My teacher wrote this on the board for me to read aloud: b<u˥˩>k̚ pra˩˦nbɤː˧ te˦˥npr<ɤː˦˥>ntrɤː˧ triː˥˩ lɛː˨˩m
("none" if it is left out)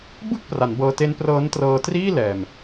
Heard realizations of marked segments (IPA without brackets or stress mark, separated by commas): ɯ˥˩, ɤː˦˥